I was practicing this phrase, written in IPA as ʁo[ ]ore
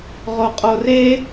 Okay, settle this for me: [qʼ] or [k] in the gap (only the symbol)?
qʼ